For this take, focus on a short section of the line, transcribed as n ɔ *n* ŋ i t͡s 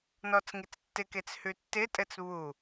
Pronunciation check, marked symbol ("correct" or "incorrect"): incorrect